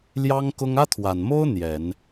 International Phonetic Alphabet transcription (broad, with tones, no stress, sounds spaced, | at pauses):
l j ɑ˥ ŋ k ʊ˥ ŋ ä˥ t̪ʰ w a˨˩ n m o˥ ʊ̯ n̪ j ɛ˨˩˦ n